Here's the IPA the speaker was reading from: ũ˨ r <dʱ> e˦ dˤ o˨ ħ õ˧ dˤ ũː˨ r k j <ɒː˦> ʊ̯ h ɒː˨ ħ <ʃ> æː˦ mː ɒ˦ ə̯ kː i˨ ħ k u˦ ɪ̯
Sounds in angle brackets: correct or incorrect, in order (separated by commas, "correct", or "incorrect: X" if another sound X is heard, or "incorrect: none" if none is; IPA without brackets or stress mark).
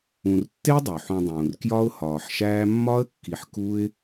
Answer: incorrect: tː, incorrect: ɒ˦, correct